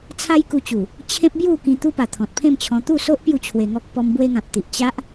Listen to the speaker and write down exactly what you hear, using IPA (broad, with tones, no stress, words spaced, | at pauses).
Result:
t͡sʰa˦jku˧t͡ɕu˨˩ | t͡ɕʰẽ˦p̚bju˥˧ kĩ˧t̪u˦pa˨˩ t̪ʰɔ̃˨t̚pʰẽ˥˧mt͡ɕʰɔ̃˧ t̪u˥˧so˦ʔ pju˥˧t͡ɕʰwe˧ŋɔ˦k̚ pɔ˧m bwe˧ŋã˨p̚t̪i˨ʔ t͡ɕa˦ʔ